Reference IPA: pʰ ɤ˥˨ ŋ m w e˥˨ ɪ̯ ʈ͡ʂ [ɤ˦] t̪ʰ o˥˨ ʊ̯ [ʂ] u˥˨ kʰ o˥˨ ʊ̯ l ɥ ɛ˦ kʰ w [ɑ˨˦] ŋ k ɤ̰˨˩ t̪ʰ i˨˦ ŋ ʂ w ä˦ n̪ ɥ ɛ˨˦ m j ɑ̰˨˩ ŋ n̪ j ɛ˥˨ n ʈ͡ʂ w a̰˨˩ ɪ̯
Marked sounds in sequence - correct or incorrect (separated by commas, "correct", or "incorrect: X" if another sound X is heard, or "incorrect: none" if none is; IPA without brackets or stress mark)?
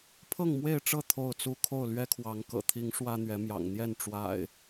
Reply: incorrect: ɤ˥˨, incorrect: t͡s, correct